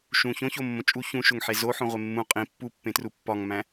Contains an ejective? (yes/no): yes